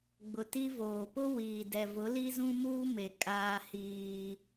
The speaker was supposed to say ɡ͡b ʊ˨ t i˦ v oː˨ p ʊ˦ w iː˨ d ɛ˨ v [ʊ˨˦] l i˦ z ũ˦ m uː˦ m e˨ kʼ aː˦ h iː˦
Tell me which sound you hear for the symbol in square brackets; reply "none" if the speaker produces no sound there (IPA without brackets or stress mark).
ʊ˨˦